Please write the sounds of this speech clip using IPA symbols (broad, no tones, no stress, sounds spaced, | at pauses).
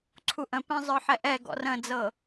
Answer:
ǀʰ u ʔ ə̃ p ɛ̃ zˤ ə˞ ħ ɛ ʔ ɛ ɡ ɔ̰ r ə̃ d͡z ɤ